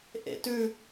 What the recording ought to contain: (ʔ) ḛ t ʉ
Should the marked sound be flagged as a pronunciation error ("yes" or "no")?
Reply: no